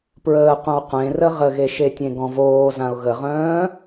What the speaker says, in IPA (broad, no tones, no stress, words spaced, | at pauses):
pɹəːqʷœ̃w qʷẽrə ʁəɣeʃe tʲẽɡɔ̃voːzãʊ̯ ɣəʁœ̃ː